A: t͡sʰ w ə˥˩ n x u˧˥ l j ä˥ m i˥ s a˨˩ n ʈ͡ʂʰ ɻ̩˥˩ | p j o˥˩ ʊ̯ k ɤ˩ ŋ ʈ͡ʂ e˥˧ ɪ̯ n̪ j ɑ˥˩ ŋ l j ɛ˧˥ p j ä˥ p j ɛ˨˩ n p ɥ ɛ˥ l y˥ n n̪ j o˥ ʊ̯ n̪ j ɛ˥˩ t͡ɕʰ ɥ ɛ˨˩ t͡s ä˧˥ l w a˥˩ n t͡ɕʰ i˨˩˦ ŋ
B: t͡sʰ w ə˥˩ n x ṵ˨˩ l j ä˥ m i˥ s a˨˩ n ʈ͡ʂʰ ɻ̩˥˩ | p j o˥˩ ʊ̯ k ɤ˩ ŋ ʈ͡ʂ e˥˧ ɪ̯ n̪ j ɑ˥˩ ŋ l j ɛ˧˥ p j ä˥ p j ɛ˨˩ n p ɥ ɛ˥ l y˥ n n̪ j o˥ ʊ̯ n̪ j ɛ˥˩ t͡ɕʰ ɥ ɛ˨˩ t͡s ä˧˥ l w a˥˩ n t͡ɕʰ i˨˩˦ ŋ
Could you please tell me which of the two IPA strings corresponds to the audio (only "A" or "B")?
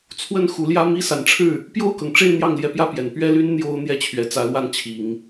A